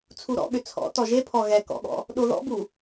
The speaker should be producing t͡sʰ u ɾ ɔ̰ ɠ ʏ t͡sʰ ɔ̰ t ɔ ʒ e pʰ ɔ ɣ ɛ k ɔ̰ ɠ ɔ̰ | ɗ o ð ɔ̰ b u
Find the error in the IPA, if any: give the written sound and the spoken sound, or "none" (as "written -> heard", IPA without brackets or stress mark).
none